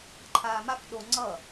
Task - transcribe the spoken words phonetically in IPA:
ǃʰaːmak ɗo ŋ͡ǀʌ

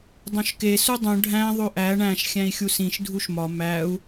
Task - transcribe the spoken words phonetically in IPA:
dˤõʃke sudˤũ ɖʱæ̃ ðˤoʔæ ɳæ̃ʃ xʲæ̃i̯xʲusĩʃ dʱuʃmɒ mæu̯

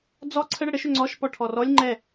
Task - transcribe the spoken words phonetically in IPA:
d͡zɔ ǀʰəɽə ɽəʃʏ ŋ͡ǀɔʃ pɔʈʰɔrɔlʲ ŋ͡ǃɛ

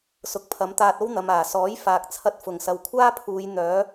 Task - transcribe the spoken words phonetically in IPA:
sʊ˨˥k̚pʰɐ˨˥mt̪aː˧t̚o˥w n̪ɐ˨maː˨˩sɔː˨˥j faː˨k̚t͡sʰɐ˧t̚ fʊ˨˩ŋsɐ˨wkʷʰaː˥pʰuː˨˧j n̪œː˨˥

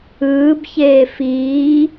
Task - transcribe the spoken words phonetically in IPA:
ɯːbçeː fiː

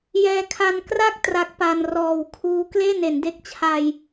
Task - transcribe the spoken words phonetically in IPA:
jɛː˧kʰa˧nkra˥˩k̚ tra˦˥k̚pa˧n rɔː˨˩wkʰuː˦˥ kleː˥˩ne˩˦nde˦˥k̚t͡ɕʰa˧j

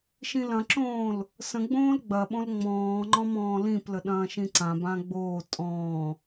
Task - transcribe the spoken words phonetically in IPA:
ʃĩlɐ̃ǁõːl | sə̃ɡ͡bõːl ɡ͡bɐɓõl ŋ͡mɔ̃ː ŋ͡ǃɔ̃mɔ̃ːlĩplə ɗɐ̃ːʃĩǀãbã ɡ͡boː tʼɔ̃ː

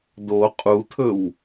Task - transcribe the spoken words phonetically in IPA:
do qʼutʰɵw

